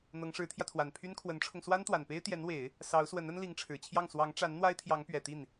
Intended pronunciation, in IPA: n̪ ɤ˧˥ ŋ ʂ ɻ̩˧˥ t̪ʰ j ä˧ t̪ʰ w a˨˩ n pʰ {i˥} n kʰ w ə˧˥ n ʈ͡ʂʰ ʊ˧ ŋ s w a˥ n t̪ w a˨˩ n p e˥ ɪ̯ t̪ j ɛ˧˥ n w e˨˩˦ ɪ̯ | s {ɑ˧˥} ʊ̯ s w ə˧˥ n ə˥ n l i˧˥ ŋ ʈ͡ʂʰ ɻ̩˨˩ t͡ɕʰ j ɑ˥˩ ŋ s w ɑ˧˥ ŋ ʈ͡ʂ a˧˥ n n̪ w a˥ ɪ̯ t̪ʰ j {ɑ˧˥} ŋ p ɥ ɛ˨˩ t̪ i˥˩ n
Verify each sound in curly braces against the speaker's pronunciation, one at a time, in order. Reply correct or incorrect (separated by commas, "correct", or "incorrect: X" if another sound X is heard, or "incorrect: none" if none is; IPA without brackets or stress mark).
incorrect: y˥, correct, correct